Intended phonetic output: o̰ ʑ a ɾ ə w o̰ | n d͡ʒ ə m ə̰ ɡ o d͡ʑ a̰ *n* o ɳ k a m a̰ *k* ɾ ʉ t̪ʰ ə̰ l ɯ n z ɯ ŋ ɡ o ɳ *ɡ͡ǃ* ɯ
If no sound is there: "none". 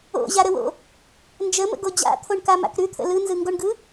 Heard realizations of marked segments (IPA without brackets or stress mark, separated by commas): t̪ʰ, k, ɡ